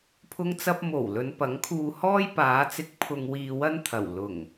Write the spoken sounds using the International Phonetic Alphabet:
pʰ ʊ˥ ŋ t͡s ɐ˥ p̚ m o˨˩ w l ɵ˨˧ n p ɐ˨˥ ŋ kʰ uː˧ h ɔː˥ j p aː˨˧ t͡s ɪ˧ k̚ pʰ ʊ˧ ŋ w iː˧ w ɐ˥ n t̪ʰ ɐ˨˩ w l ʊ˨˩ ŋ

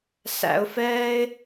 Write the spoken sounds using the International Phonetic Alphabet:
s æ̰˧ ʊ̯ f ɛː˥ ɪ̯

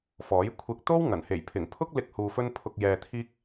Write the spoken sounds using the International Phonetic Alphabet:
f ɔː˨˥ j kʷʰ ɪ˧ k̚ t̪ o˥ w ŋ ɐ˨˩ n h e˨˩ j pʰ ɪ˨˩ ŋ pʰ ʊ˥ k̚ l ɪ˧ k̚ h uː˨ f ɵ˧ n pʰ ʊ˨ k̚ j ɛː˨ t̪ʰ iː˥ k̚

